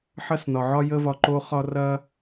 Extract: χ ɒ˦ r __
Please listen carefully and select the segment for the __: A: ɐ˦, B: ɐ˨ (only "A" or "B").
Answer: A